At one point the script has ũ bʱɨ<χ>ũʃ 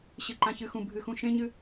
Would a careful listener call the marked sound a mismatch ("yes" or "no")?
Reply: yes